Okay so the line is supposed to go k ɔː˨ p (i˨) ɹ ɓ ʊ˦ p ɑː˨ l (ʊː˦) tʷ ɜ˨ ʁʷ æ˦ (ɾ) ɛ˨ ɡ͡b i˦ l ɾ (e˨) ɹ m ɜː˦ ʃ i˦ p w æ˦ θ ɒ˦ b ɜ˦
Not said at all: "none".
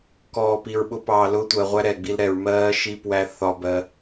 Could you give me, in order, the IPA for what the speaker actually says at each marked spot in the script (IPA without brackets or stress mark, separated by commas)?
i˨, ʊː˦, ɾ, ɛ˨